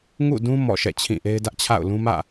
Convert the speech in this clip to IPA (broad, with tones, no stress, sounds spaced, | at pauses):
ŋ ṵ˦˨ d ũ˦ m ɔ̰˦˨ ʃ ɛ̰˦˨ t͡ɕʰ ĩ˦˨ ʔ e˦ ɪ̯ d ä˦ ʔ t͡ɕʰ a̰˦˨ ʊ̯ l ũ˦ m ä̰˦˨